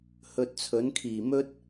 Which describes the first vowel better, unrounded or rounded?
rounded